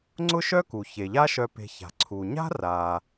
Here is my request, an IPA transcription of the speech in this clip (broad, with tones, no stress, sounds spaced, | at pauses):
ŋ͡ǀ ʊ˥ ʃ œ˥ k u˩ ç e˩ ʎ a˥ ʃ œ˧ p e̤˧ ç a̤˩ ǀʰ u˩ ɲ a̤˥ r a˩